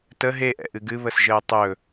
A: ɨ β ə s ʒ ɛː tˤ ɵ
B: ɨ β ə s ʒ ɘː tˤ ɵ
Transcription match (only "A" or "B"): B